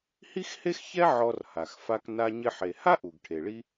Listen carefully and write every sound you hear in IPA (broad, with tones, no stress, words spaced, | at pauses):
hi˥xhe˥xçɛ˥ ʕɔ˧rha˩xfa˧k na˧ɲɪ˧ħe˩ ha˥ʔu˩ɡʈʰe˩ɭi˧